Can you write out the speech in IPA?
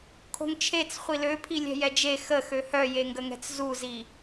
kʰo̤ŋt͡ʃʰet͡s χʷiløpʰi lʲɛ̤jɛd͡ʒe xəxø hœjeŋɡəŋɛ̤t͡s zuzi

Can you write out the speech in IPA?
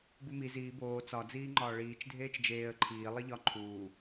bumi ziː boː t͡sɒ d͡ziːŋ͡ǃɒːɭiːt͡ʃ dʱeːt͡ʃd͡ʒeːə̯ ǃʰiː lˠiʎɒ ǃʰuː

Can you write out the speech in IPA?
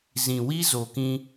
zĩ˨wi˦ zo˨kĩ˧

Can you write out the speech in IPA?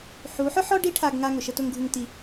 ħu˨˦ħʊ˦ħɔ˦ ɖi˦ʈʰa˧ɡŋa˧ ŋʊ˨ʃə˧tʊ˧ŋɡʱu˧ŋ ti˧

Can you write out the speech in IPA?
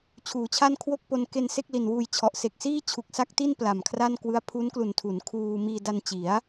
t͡ɕʰuː˩˦t͡ɕʰa˥˩nkʰwo˥˩k̚po˧n ke˧n se˥˩k̚li˨˩nwuː˧jt͡ɕʰɔ˨˩ʔ se˨˩k̚siː˥˩t͡ɕʰu˨˩k̚sa˦˥k̚ ti˥˩n pla˨˩mkʰra˥˩nkwɯ˦˥a̯ pʰu˦˥nklu˨˩ntʰu˩˦n kʰuː˧ miː˧da˧nt͡ɕi˩˦a̯

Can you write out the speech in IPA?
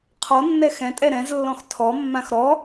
qʰɔnːɛ xɛ̃tʼɛ ɾɛ̃zlːɔ̃x tʰɔmːãx ɾɔ

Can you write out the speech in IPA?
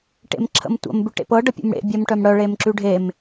ʈḛmǁʰə̰mtʷə̰m bʉʈḛpɤ ɖəpʲṵmɽḛ bʲœmʈœmɽœ ɭemǁʉɖʱem

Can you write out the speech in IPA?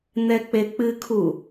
n̪ɛk͡pek͡pɨkʰu

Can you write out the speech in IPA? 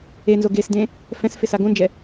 enzo ɡesdẽ | fɛ̃sfɪ saɡõnd͡ʒɛ

